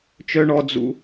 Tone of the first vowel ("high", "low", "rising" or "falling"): high